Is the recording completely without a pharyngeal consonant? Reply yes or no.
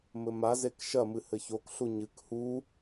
yes